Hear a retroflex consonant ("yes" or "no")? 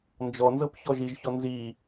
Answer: no